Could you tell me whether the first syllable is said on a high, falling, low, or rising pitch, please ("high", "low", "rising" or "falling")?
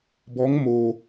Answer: rising